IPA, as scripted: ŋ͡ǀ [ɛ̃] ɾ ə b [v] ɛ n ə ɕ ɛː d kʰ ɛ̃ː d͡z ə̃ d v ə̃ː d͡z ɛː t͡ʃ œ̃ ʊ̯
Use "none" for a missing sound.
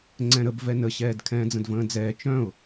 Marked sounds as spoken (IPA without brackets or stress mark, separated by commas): ɛ̃, v